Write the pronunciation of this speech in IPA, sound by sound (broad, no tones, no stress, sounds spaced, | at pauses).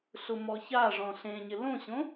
ɬ ʊ m ɔ ç a ʐ ɔ̃ ɬ ẽ ɲ ɪ l õ ɕ õ